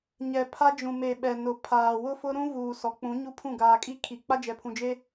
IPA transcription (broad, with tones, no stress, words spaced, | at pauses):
ɲɛ˨ pʰa˦ d͡ʒũ˨me˨ ɓɛ˨nʊ˨ pʰaː˨wʊ˦fʊ˦ɾũ˦ vuː˨sɔ˨k͡pũ˨˦ ɲu˦pʰũ˦˨ ɡaː˨kʼi˦ kʰi˨ k͡pa˦d͡ʒɛ˨pʰũ˨d͡ʒe˦